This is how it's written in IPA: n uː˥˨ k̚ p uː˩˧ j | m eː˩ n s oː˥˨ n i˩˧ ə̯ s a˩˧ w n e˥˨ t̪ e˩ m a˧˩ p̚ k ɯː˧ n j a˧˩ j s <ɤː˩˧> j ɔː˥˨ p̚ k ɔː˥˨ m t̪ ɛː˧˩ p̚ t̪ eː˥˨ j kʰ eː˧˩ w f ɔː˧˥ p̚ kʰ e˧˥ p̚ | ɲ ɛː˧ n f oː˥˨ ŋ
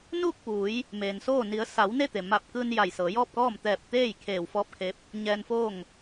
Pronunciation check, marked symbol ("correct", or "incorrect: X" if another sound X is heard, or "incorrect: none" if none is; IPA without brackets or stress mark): correct